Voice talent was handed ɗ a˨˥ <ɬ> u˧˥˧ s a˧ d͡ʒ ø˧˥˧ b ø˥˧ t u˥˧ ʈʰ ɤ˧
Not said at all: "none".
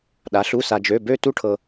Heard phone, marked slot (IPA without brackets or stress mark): ɬ